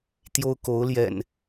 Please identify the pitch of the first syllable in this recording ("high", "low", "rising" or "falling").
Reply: high